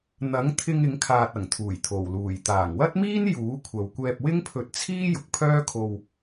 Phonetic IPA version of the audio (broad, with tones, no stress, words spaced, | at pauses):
n̪ɐ˨˥ŋt̪ʰɪ˧ŋ ɪ˨˧ŋkʰaː˨t̚ɐ˨˩ŋt̪ʰuː˨˩j t̪ʰo˨˩wluː˨˩j t̪aː˨˩ŋwɐ˥t̚miː˥n juː˨˥ kʷʰɐ˨wkʷɛː˧p̚ wɪ˥ŋpʰɵ˧t̚t͡sʰiː˥ jʊ˨k̚pʰœː˥kʰo˧w